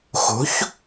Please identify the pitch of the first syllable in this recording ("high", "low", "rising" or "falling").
rising